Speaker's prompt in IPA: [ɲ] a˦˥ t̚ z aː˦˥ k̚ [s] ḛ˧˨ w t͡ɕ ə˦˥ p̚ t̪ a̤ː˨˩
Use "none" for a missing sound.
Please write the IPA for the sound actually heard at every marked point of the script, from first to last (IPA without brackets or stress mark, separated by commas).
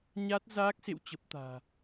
ɲ, s